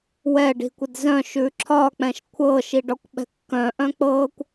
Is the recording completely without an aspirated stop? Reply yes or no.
no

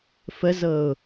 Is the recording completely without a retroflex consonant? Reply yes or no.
yes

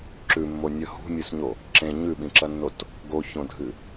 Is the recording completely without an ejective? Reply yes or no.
yes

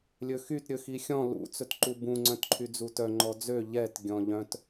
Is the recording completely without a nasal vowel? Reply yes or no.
no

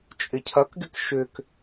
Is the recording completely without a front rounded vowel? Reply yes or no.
no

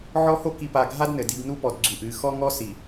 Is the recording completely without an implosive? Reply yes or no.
yes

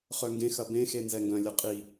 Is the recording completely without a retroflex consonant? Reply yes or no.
yes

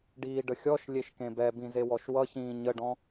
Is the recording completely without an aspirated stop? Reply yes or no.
yes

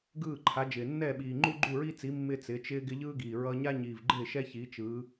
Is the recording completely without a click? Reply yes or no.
no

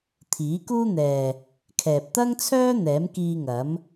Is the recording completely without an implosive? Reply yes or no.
yes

